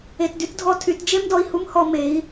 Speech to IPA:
e˧ t d y˦ t dʱ ɔ˧ tʰ y˨˦ t d͡ʒ e˦ m d ɔ˧ i̯ h u˦ m h ɔ˧ m e˨˦ i̯

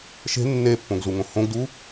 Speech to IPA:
ʃ e̤ nː e pː õ ɡ z u ŋ õ h õ ɡ d u

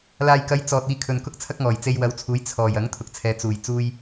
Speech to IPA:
l aː˨ j k ɐ˨˥ j t͡s ɔː˨ t̚ iː˧ kʰ ɵ˨˧ n k ʊ˥ k̚ t͡sʰ ɐ˥ k̚ ŋ ɔː˨˩ j t͡s e˧ j w ɐ˨˥ w t͡sʰ uː˨˥ j t͡sʰ ɔː˨˩ j ɐ˨˥ ŋ t̪ʰ ʊ˨ k̚ t͡sʰ ɛː˨˧ t͡s uː˨˩ j t͡s uː˧ j

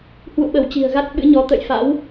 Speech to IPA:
h w ṵ˧˨ ɓ ə˧˩ w t͡ɕ i̤˨˩ ə̯ ɣ a˦˥ t̚ ɓ ɨ̰˧˥ ɲ ɔ˨˦ t̪ ə̰˧˨ j f a̰˧˥ w

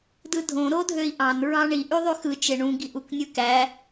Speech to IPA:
d ɯ dʱ õ ɾ o dʱ ø i̯ ʔ ɑ̃ n ɹ ɑ̃ ɳ i ʔ y ðˤ y x ɯ t͡ʃ e ɳ ũ ɡ i ʔ u k nʲ ɯ k æ

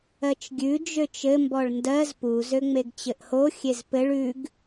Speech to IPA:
ɜ t͡ʃ ɡʲ ʉ d͡ʒ ø t͡ʃ ɘ m b ɔ ɭ n d ɜ z p u z ø ŋ͡m e ɡ t͡ɕ ɘ ʔ h o xʲ e z p ɘ ɭ ʉ ɡ

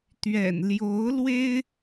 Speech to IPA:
t̪ ɥ ɛ̰˨˩ n l j o˧˥ ʊ̯ l w e˥ ɪ̯

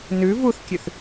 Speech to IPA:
n ʉ v u θ kʲ ʉ θ

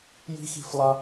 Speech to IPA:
j i̤˦ x i̤˦ f lˠ a˦

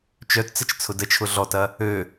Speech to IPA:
t͡ʃ œ t t͡s ə t͡ʃ t͡sʰ ʊ d ə t͡ʃʰ ʊ ɮ ɔ t ɐ | ø

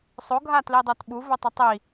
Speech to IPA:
sˤ o ɡʱ a t l i dˤ o t ɓ u v ɵ tˤ ɵ tˤ i

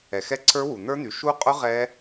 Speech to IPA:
ɛ˨ x ɛ˦˥ ǀʰ ə˞˦˥ w u˨ n̪ ə˞˦˥ n̪ y˨ ʃ u˦˥ qʼ ʊ˦˥ ʁ ɛ˦˥

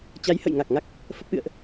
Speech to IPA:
t͡ɕ a˨˦ j h ə̰˧˨ j ŋ a˨˩ k̚ ŋ a˦˥ k̚ | f ə˦˥ p̚ ʔ ɨ̰˧˨ ə̯ ʔ

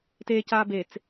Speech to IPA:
t eː c aː b e t͡s

